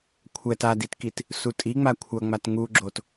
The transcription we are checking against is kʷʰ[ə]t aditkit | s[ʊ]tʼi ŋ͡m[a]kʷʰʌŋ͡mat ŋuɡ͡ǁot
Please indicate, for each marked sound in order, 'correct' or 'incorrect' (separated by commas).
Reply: incorrect, incorrect, correct